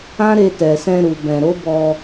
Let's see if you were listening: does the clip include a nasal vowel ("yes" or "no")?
yes